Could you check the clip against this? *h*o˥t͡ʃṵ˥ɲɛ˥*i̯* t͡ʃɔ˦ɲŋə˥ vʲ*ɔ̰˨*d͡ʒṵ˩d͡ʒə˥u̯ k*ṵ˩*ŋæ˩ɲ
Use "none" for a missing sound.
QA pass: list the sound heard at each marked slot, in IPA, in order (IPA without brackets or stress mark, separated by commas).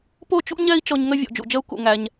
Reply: p, i̯, ɔ̰˨, ṵ˩